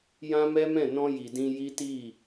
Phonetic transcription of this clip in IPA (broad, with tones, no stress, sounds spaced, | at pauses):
j ã˦ m ɛ˦ m ɛ̃˦˨ n ɔ̃˧ j i˨ d ĩ˧ j i˦ t i˦˨